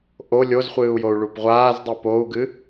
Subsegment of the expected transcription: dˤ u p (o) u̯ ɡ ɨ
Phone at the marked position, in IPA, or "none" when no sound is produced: o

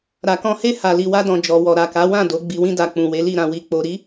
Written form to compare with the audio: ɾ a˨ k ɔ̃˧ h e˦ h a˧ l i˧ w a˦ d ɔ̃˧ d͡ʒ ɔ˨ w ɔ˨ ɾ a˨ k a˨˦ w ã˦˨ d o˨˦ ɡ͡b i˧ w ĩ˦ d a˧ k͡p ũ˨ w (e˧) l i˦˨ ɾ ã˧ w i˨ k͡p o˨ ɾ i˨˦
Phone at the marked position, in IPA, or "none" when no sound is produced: e˨˦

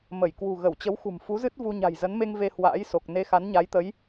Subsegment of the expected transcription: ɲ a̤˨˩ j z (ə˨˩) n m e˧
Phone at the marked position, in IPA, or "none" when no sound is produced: ə˨˦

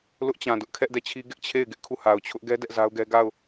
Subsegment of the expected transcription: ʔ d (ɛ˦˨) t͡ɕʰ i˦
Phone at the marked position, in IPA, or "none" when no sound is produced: ɛ˦˨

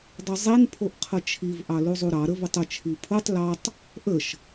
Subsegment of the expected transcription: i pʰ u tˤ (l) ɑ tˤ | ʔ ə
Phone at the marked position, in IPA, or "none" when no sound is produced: l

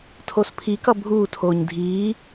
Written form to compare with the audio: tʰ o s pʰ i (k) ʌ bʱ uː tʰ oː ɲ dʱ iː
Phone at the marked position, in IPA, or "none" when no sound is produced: k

